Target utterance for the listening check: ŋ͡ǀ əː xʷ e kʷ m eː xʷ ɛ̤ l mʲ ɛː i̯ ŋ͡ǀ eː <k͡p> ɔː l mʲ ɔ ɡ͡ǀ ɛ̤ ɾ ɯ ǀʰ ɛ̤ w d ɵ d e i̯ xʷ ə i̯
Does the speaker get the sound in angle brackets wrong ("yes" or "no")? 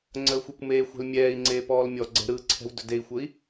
yes